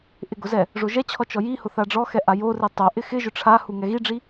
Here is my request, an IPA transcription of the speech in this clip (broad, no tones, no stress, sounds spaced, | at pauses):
ʔ ɪ ɡ ʊ z ɛ | ʐ o ʒ ɛ t͡ɕʰ ɔ t͡ʃ ɔ j i h ʊ θ a ɖ͡ʐ ɔ x ɛ ʔ a j o r i tˤ o ʔ ɪ x ɪ ʒ ʊ ʈ͡ʂʰ a h u ŋ ɛ ɣ i ɖ͡ʐ i